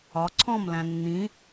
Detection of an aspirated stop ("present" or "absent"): present